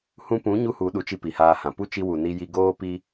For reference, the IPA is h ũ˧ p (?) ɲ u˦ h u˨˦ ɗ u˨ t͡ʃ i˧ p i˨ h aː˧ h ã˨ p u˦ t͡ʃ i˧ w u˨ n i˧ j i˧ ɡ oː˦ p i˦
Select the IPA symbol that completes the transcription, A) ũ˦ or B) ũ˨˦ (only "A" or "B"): B